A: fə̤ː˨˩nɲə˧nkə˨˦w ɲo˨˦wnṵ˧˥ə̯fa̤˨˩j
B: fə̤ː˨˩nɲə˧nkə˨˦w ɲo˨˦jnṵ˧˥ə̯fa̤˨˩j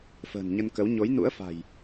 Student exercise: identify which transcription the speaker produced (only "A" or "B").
B